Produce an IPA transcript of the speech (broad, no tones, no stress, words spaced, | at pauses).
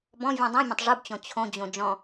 bɔ̃ vʲũdˤĩmʲõtˤ ʐubt͡ɕɔ̃ t͡ɕʰõd͡ʑõ d͡ʒɔ̃